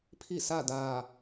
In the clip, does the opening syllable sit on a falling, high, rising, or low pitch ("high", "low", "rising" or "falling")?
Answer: falling